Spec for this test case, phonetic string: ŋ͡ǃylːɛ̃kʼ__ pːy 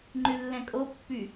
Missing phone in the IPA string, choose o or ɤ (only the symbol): o